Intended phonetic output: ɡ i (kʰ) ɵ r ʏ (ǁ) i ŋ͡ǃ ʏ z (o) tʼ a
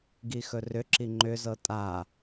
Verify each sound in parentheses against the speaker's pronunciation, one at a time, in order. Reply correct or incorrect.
incorrect: x, correct, incorrect: ɤ

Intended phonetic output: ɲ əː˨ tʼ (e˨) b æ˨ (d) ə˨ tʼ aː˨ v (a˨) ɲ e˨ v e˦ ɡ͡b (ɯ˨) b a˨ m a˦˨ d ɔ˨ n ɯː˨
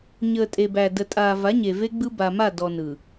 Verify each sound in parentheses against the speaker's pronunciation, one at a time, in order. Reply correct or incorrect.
correct, correct, incorrect: a˨˦, incorrect: ɯ˦

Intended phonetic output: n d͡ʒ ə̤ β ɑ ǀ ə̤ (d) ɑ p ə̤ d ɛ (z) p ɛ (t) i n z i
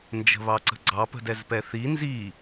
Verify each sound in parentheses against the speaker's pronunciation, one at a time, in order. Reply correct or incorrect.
incorrect: ɡ͡ǀ, correct, incorrect: θ

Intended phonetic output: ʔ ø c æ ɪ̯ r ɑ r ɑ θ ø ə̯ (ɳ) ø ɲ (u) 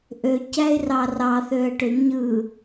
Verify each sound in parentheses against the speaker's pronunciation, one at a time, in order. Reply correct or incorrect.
incorrect: ʈ, incorrect: ɯ

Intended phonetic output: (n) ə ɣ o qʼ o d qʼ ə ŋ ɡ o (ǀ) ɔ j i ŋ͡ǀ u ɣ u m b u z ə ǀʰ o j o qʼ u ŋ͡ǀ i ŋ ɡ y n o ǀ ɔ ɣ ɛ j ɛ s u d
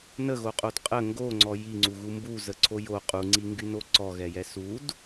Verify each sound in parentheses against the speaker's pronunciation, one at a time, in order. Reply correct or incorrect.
correct, incorrect: ŋ͡ǀ

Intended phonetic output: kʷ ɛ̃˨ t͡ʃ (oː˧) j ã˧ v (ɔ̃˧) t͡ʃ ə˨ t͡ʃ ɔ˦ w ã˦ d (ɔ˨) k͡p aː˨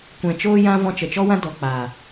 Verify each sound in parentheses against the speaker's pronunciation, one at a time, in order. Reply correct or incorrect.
correct, correct, correct

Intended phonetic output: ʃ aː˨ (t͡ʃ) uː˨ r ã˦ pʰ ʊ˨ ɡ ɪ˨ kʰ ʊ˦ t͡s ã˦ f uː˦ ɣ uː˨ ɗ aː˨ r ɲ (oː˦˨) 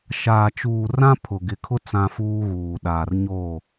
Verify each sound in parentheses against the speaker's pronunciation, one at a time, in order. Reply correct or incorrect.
correct, correct

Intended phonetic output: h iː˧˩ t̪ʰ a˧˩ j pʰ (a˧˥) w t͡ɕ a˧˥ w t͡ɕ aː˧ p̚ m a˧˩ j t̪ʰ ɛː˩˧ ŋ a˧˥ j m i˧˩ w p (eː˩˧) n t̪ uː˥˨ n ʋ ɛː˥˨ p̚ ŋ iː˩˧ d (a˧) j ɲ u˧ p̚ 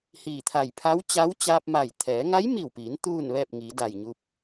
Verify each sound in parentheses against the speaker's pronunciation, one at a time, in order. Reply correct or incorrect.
correct, incorrect: iː˩˧, incorrect: a˧˩

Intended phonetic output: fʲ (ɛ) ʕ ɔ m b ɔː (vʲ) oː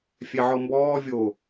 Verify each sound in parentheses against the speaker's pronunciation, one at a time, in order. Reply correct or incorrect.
correct, correct

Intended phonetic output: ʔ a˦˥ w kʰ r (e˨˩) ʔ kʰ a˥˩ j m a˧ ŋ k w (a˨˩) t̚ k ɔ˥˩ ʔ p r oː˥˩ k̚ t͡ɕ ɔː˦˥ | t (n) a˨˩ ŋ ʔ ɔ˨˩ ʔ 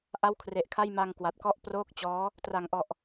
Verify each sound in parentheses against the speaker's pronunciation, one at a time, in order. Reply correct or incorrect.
correct, correct, incorrect: r

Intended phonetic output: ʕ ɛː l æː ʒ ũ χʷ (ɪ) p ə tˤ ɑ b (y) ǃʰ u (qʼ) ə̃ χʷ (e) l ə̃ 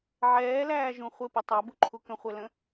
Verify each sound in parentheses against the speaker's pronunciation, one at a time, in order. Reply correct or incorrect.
correct, incorrect: u, incorrect: k, incorrect: ɛ

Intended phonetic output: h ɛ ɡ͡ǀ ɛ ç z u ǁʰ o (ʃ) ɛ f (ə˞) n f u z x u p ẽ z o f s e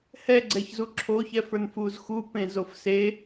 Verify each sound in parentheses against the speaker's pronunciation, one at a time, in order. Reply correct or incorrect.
incorrect: ç, correct

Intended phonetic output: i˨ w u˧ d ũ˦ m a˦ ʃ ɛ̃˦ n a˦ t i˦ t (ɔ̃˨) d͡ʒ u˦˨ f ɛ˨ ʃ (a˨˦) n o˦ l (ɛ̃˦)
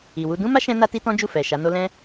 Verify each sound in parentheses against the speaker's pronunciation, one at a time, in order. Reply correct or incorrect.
incorrect: ɔ̃˦, correct, correct

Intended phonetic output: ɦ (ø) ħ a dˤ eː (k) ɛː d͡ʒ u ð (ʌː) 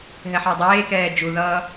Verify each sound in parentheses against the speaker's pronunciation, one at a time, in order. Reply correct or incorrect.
incorrect: ɛ, correct, correct

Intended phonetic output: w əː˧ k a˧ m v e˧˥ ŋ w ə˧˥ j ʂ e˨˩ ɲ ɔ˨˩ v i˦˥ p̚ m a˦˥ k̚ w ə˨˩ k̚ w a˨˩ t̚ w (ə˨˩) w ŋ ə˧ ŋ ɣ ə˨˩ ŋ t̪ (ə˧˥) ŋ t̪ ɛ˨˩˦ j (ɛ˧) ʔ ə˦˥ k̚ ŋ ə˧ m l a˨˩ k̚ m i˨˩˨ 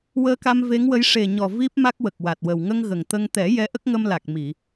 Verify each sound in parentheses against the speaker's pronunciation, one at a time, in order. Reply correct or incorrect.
correct, incorrect: ə˧, incorrect: ɛ˧˥

